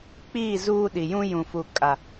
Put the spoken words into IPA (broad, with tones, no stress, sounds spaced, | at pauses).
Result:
k͡p iː˦˨ z uː˦ ɗ i˨ j ũ˦ j ũ˨ f u˨ kʼ a˨